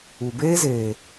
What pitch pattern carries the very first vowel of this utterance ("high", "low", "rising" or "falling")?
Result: low